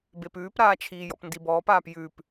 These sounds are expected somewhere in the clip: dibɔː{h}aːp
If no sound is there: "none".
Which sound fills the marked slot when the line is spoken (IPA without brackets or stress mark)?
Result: p